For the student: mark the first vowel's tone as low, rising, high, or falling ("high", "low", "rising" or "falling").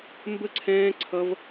high